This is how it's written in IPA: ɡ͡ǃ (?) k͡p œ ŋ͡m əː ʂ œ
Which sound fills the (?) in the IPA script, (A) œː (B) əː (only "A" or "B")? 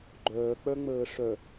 A